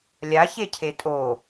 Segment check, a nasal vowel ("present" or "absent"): absent